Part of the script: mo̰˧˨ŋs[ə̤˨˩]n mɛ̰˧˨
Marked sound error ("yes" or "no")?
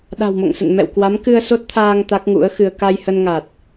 yes